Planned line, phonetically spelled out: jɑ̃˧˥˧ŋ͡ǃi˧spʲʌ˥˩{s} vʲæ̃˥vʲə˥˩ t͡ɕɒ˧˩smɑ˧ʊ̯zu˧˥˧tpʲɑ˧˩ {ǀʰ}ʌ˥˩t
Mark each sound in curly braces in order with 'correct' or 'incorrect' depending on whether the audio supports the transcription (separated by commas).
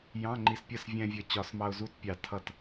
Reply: correct, incorrect